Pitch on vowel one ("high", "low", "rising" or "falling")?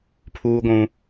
high